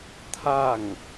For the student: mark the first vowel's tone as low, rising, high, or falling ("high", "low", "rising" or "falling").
falling